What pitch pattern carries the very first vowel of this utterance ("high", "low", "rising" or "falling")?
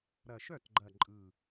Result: low